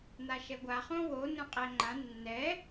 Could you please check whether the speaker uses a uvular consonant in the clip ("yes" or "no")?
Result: yes